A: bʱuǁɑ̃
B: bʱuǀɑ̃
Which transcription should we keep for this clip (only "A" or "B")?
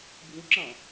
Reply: A